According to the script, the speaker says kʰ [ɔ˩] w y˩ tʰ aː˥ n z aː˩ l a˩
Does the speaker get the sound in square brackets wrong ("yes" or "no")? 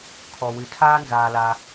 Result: no